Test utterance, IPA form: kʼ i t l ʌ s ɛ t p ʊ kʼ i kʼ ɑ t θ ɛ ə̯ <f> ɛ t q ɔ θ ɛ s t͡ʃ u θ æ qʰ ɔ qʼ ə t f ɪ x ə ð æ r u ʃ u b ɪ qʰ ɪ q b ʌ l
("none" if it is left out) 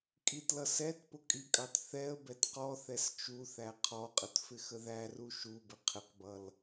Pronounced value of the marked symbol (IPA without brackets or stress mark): b